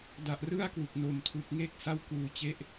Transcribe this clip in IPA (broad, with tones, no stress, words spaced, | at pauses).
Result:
da˨˩ʔrɯ˥˩a̯kwu˨˩k̚ no˨˩mtʰu˨˩k̚ŋe˥˩k̚ sa˥˩wkuː˧t͡ɕe˥˩ʔ